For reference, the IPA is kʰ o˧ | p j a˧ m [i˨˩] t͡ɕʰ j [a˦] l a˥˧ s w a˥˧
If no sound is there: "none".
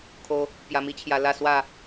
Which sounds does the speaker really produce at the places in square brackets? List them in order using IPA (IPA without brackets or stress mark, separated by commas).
i˦, a˧